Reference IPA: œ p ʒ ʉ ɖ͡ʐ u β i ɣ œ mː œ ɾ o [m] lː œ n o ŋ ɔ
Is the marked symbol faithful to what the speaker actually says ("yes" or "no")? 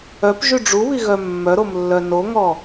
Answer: yes